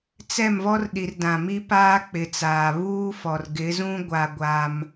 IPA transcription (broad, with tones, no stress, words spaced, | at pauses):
t͡sɛ˦˨mvɔ˦r ɗi˨rdã˨ mi˦paː˦ k͡pɪ˨t͡saː˨ βuː˦fɔ˨r ɡɪ˨˦zũ˦ ɡʷa˦ɡʷa˦m